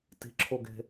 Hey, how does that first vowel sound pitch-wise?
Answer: rising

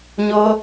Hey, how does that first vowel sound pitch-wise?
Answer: high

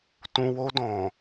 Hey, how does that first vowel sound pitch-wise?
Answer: low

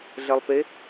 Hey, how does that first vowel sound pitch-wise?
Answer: low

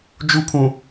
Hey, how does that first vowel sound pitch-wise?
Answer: high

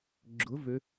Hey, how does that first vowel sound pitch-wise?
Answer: rising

